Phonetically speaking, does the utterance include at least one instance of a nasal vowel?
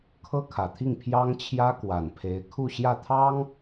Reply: no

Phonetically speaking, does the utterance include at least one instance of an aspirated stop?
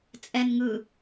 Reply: no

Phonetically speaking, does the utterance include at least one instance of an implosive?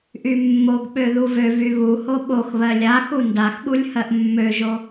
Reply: yes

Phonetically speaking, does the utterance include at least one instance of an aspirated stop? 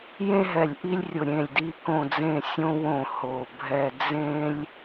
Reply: no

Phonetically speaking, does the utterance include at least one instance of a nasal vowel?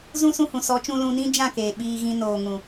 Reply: yes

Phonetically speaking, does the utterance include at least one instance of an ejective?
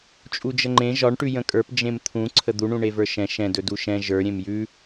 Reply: yes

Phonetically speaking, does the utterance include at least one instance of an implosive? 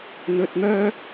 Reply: no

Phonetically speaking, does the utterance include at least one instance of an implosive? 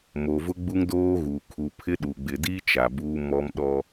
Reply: yes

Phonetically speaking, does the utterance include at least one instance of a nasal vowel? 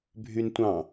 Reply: yes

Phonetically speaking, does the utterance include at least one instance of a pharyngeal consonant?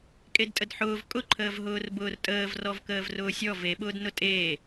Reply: yes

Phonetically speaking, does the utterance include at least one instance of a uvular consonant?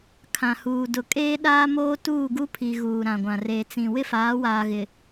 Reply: no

